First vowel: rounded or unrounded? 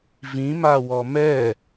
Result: unrounded